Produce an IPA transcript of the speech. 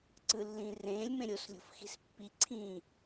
ǀ ɯ lː ĩː r ẽː lʲ m ẽ ɾʲ o s lʲ o̤ f x i̤ s pː i ǀʰ ĩː

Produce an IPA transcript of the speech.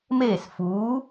m eː˦˨ s f uː˨˥

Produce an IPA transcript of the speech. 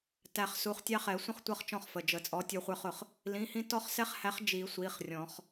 t æ˨˩˦ χ s u˩˧˩ χ tʲ ɑ˦ χ ɛ˨˩˦ sʷ ə̃˥˩ χ tʷ ʌ˥˩ χ t͡ʃ ɔ̃˥˩ χ f ə˩˧˩ d͡ʒ ə˨˩˦ t͡sʼ ɔ˨˥ tʲ ə˞˦ χʷ ə˞˦ χ ʊ˨˩˦ χ | l ĩ˩˧˩ h ĩ˦ t ɔ˦ χ s ɛ˦ χ h æ˨˥ χ d͡ʒ i˨˩˦ sʷ i˩˧˩ χ rʲ ɔ̃˨˩˦ χ

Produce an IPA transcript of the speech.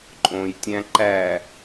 ǃʼ õ j tʲ æ̃ ǃ æ

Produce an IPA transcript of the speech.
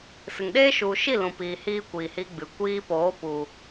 s ɨ˨ ŋ ɗ eː˦ ʃ u˨ ʃ i˦˨ l ũ˨ p iː˨ h iː˧ kʷ iː˨ h iː˧ ɡ͡b ɨ˨ kʷ iː˧ p oː˨˦ p u˨

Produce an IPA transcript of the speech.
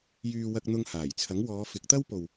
j yː˧ w ɐ˧ k̚ n̪ ʊ˧ ŋ h aː˨˩ j t͡sʰ ɐ˨˥ ŋ w ɔː˨˧ f ɪ˨˥ k̚ t̪ ɐ˥ w p o˨ w

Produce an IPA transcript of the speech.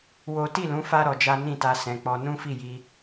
w o˦ t i˦˨ l ũ˨˦ f a˦ ɾ ɔ˧ d͡ʒ a˦ n ĩ˦˨ t a˧ s ɛ̃˧ k͡p ɔ˦ n ũ˦ f i˦˨ j i˧

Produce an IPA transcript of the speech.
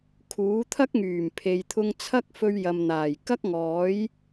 kʰ uː˨˥ t̪ʰ ɐ˥ k̚ ŋ yː˨˩ m pʰ e˨ j t̪ʰ ʊ˧ ŋ t͡sʰ ɐ˥ k̚ f ɵ˧ ɥ j ɐ˨ m n̪ aː˨˩ j k ɐ˥ k̚ ŋ ɔː˨˥ j

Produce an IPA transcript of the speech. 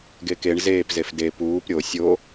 ɡ e k e ɳ z eː p z e f d e p uː p ɾʲ o sʲ o

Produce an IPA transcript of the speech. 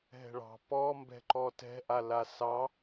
ɦ ɛ̤ ɭ ɑ̤ p ɔ m b ɛ̤ ǃ ɔ t ɛ̤ ʔ a l a s ɑ

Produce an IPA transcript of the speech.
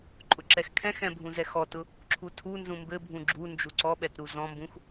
ǃʼ ʊ ǁ ɛ x kʰ ɛ̃ x ɛ̃ bʱ ũ z ɛ x ɔ t ʊ | ǁʰ u tʰ u n z ũ m b ɘ bʱ ũ ɡ͡ǁ u n d͡ʒ u ǀ ɔ ɓ ɛ t ɾ u z ɔ̃ m b ũ x

